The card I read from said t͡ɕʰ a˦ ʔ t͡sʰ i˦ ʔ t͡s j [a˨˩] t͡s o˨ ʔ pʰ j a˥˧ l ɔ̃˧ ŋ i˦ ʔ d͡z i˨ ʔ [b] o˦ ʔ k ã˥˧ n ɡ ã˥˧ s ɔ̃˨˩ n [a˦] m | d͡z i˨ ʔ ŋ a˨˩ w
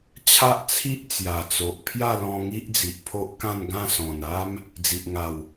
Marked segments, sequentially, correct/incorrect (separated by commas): correct, incorrect, correct